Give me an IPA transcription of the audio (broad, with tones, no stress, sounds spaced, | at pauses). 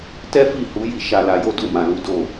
t ɛ˦ f i˦˨ h u˨˦ j i˦˨ ʃ a˧ l a˧ j o˦ d u˦˨ m ã˨ l u˨˦ d o˦˨